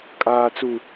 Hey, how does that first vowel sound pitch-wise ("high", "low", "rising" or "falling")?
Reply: high